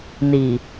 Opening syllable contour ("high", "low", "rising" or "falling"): low